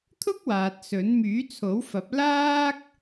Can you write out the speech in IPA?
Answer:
t̪ʰ ʊ˥ k̚ w aː˨ t̚ s ɵ˨˥ n m yː˨˥ t͡sʰ o˨˥ w f ɐ˨˥ p̚ l aː˥ k̚

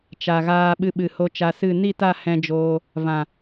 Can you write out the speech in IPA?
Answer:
t͡ʃ a˨ ɣ aː˧ ɓ ɨ˧ ɓ ɨ˨ h o˧ t͡ʃ a˧ s ɨ˦˨ n i˦˨ t a˦˨ h ɛ̃˧ d͡ʒ oː˧ | v ã˨

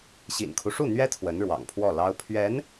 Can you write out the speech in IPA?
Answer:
ɕ ḭ˨˩ n kʰ u˦ ʂ u˥˩ n̪ ɥ ɛ˥ t̪ʰ w ə˧˥ n ɻ w ɑ̰˨˩ ŋ pʰ w ɔ˥˩ l ɑ˥ ʊ̯ pʰ ɥ ɛ˧˥ n

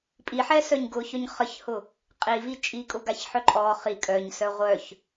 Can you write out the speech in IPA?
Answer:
pʼ i ħ ɛ s œ ɲ ɡ ʊ ç œ ɲ χ ə ç h ʊ | qʼ i v i t͡ʃʼ i kʼ ʊ ɡ a ç ħ œ ǃʼ ɔ χ i kʼ œ ɲ s œ ʁʷ œ ç

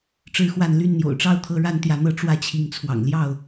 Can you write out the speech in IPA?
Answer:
ʈ͡ʂ ɻ̩˦ x w a˥˨ n l y˥˨ n n̪ j o̰˨˩ ʊ̯ ʈ͡ʂ ɑ˥˨ ʊ̯ t̪ʰ ɤ˦ ɻ a˦ n t̪ j ä˨˦ n̪ ɤ˦ ʈ͡ʂ w ä˦ t͡ɕʰ i˨˦ ŋ t͡sʰ w ɑ̰˨˩ ŋ l j ɑ˥˨ ʊ̯

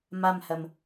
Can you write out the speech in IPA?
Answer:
m a m h ɜ m

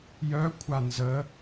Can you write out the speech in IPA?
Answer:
j œ kʷʰ a n z ə

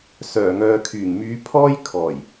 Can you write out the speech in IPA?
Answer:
s œː˨˩ ŋ œː˨ kʰ yː˨˩ ŋ m yː˨˧ pʰ ɔː˥ j kʰ ɔː˨˩ j

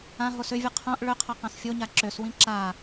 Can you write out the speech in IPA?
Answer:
ã ɦ o s ʏ vʲ ɨ qʰ õ ʔ ɭ ʏ qʰ ʌ q ã s fʲ o ɲ a ǁ ø s w ĩ ǁ a

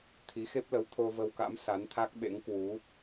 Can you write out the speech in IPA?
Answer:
t̪ʰ i˨˦ x e˦˥ p̚ l ə˨˦ w t̪ʰ o˧ v ə˧ w k a̰˧˥ m s a˨˦ n t̪ʰ a˦˥ k̚ ɓ ḛ˧˥ ŋ k w u˨˦

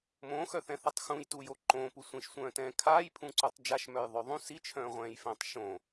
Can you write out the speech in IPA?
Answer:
m õ x œ θ ɛ̃ θ a tˤ x ũ j t u j o ǃ õ p u sʷ ĩ ʃ sʷ œ̃ː t ɛ̃ː kʰ aː j pʰ ũ ǀ u tˤ d͡ʒ a ʃ m œ j ðˤ ø ðˤ ũ s i t͡ʃʰ œ̃ː ʁʷ ɛ̃ː j f ɛ̃ː tˤ ʃ õ

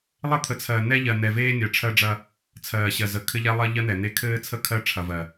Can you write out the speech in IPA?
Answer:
lˠ ɘ˦ t̪ʰ ə˨ t͡sʰ ɜ˨ n ɛ˦ ʎ ɜ˨ n ɛ˨ v eː˦ nʲ ɜ˨ ʈ͡ʂʰ ɜ˦ ɖ͡ʐ ɐ˦ | t͡sʰ ɜː˨ ɕ ɜ˨ z ə˨ kʰ ɘ˦ ʎ ɛ˦ lˠ ɐ˦ ʎ ɜ˦ n̪ ɛ˨ n̪ e˦ kʰ ɘː˦ t͡sʰ ə˦˨ kʰ ɜ˦ ʈ͡ʂʰ ɐ˨ v ɜ˨

